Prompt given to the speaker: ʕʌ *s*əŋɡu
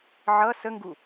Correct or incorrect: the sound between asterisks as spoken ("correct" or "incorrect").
correct